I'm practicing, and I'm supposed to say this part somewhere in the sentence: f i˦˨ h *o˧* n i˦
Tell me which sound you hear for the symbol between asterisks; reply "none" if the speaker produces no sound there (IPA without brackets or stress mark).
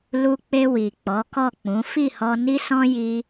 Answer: ɔ˧